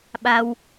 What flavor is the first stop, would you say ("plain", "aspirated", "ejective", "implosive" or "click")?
implosive